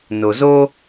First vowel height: mid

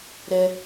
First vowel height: mid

